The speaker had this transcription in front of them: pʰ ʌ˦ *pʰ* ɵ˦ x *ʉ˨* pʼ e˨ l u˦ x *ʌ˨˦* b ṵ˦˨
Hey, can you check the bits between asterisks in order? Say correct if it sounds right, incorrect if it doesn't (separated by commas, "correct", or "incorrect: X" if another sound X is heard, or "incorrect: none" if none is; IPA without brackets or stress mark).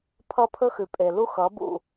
correct, correct, correct